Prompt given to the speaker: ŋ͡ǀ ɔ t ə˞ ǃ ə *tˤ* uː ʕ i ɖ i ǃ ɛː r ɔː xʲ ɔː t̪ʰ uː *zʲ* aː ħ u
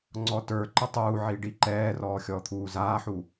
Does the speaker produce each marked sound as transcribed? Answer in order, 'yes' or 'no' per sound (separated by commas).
yes, no